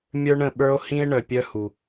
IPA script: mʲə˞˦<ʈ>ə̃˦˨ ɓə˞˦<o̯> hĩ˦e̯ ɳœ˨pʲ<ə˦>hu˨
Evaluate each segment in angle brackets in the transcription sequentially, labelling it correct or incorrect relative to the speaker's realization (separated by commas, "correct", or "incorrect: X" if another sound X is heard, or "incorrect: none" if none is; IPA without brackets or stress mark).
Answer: incorrect: ɳ, correct, incorrect: œ˦